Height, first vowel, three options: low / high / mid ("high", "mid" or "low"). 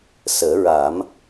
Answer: mid